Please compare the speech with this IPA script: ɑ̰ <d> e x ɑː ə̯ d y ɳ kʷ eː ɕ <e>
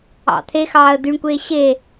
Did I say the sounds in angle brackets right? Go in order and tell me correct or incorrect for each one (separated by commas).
incorrect, correct